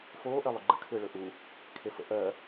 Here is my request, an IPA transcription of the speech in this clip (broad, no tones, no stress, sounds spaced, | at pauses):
f oː ʔ ɜ lˠ ʏ ɡ͡ǃ ə̰ kʰ ʏː ɭ ɵ ʔ u | kʰ e f ə̰ ʔ ɜ